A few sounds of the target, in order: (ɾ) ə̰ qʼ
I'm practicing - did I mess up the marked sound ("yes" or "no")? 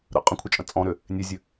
no